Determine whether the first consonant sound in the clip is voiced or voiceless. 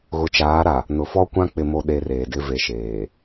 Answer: voiced